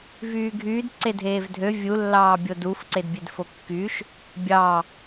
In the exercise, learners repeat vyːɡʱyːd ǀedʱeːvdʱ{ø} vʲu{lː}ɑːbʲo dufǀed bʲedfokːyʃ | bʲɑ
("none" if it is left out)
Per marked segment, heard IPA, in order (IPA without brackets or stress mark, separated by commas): ø, lː